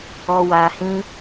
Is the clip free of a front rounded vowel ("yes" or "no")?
yes